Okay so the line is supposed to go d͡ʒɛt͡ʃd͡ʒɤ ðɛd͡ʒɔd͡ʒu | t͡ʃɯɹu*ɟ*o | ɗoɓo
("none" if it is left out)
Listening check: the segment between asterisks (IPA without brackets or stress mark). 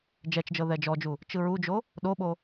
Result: d͡ʒ